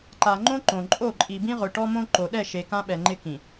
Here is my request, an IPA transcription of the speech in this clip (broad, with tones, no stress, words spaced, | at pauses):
ǃa˨ŋ͡ǃõ˦ ǃõ˨ ǃʼo˦˨ǃʼi˨bĩ˦ʁʊ˨ ʈɔ˦mõ˦ ǃo˨ɗɛ˦˨ʃe˨ kã˦ɓɛ˨ŋ͡ǃɪ˦ kĩ˨